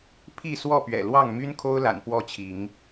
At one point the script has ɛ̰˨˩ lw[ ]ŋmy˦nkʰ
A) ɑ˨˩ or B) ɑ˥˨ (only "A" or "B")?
B